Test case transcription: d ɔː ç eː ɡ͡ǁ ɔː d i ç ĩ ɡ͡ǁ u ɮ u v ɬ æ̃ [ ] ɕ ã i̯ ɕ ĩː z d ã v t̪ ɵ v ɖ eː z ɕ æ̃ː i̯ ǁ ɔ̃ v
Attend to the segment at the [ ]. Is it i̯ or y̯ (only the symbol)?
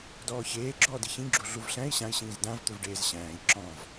i̯